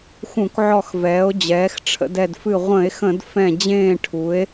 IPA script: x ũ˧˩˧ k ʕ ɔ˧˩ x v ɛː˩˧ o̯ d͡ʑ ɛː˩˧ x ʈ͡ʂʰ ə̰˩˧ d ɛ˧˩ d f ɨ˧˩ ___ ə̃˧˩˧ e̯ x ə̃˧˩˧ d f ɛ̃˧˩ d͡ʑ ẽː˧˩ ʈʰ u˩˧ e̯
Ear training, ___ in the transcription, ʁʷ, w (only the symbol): ʁʷ